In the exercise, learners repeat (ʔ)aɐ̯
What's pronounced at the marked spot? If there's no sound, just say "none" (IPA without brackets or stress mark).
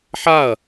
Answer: ħ